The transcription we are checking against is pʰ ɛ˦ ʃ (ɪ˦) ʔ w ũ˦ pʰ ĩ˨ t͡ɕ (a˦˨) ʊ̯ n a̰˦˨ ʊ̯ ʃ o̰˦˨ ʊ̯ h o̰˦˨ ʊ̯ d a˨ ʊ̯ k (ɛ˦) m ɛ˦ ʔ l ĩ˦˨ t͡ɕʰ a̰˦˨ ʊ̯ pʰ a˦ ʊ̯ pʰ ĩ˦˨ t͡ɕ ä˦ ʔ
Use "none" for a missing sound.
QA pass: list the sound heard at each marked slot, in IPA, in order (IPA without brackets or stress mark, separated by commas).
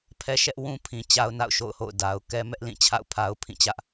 ɛ˦, a˦, ɛ˦